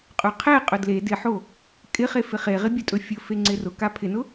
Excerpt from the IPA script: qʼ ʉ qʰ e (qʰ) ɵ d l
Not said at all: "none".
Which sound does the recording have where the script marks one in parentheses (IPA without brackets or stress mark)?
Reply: qʼ